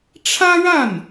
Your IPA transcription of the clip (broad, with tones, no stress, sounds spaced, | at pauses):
ʈ͡ʂʰ ä˥ ɻ a˥˩ n